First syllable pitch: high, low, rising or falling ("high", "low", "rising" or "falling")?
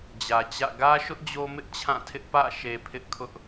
low